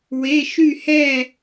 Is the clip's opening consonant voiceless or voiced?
voiced